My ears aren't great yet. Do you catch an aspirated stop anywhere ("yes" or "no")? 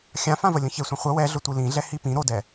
no